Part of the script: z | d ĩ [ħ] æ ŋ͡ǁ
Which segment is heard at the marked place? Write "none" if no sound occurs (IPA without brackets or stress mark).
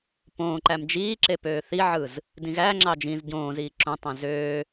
ɣ